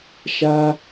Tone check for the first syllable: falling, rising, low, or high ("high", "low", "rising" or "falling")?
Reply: high